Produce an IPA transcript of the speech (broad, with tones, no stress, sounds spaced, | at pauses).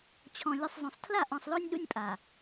t͡ɕʰ ɔ̃˨ lʲ u˨ sˤ zˤ õ˨ sˤ tʰ l a˦˨ ʔ ɔ̃˨ sˤ l o˦ nʲ ɗ ṵ˦ nʲ pʼ a˨